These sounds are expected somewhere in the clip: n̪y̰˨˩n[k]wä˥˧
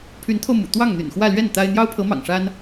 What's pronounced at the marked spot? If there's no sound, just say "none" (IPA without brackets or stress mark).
x